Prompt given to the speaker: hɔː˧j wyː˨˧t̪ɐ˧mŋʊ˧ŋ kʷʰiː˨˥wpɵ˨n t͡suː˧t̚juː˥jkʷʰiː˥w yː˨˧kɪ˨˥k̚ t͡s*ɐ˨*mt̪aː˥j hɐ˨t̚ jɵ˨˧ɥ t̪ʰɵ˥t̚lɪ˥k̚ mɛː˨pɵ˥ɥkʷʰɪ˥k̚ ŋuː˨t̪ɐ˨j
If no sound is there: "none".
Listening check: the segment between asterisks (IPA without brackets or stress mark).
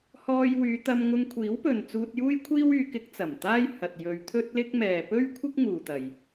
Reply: ɐ˨˩